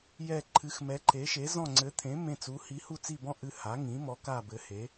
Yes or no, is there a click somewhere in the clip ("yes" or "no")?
yes